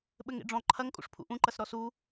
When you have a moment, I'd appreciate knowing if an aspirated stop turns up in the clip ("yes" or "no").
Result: yes